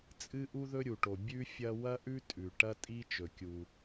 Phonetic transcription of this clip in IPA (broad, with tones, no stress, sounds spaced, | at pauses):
t͡sʼ ɨ˥ ʔ u˥ ð ɵ˥ ɾʲ u˩ ʈ o˩ bʲ ʉ˥ fʲ ɐ˥ w ɐ˥ ʔ ʉ˥ tʼ ʉ˩ ʈ ɐ˥ tʼ i˥ t͡ʃ ɵ˩ kʲ u˩